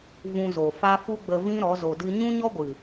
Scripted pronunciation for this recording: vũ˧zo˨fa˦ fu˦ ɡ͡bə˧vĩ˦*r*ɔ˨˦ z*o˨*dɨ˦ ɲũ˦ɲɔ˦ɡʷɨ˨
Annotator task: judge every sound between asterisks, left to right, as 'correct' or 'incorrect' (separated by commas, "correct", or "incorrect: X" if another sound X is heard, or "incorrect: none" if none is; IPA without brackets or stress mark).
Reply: incorrect: ɾ, incorrect: o˧